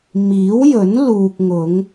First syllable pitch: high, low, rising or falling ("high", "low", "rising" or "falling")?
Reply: rising